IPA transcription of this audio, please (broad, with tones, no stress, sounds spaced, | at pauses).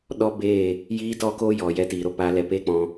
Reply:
ɗ ɔ˦ b eː˦˨ | j iː˦ t ɔ˦ k o˦ j ɔ˨ j ɛ˧ t iː˨ ɾ o˧ p aː˧ l ɛ˧ p eː˦ k͡p ɔ̃˧